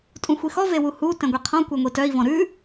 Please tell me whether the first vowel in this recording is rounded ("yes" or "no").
yes